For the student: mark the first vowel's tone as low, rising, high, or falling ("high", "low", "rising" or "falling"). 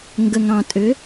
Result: low